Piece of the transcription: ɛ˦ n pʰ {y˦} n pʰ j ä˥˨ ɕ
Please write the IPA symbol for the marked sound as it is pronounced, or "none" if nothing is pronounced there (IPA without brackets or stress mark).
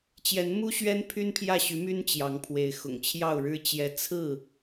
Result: y˦